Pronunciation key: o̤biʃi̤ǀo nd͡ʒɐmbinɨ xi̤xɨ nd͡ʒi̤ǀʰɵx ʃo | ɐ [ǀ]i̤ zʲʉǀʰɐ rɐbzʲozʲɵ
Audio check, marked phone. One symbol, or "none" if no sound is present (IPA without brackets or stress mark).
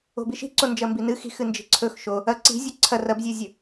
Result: ǀ